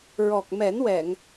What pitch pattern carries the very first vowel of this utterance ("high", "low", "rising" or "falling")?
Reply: low